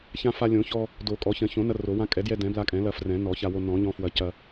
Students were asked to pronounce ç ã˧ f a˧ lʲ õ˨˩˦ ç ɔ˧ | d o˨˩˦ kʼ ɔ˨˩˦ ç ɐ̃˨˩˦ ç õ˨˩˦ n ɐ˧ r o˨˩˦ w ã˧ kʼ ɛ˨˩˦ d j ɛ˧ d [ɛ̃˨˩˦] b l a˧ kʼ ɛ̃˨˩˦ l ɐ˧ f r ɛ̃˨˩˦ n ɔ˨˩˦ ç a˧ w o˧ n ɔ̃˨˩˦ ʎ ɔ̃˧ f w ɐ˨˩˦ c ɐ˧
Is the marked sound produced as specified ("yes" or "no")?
yes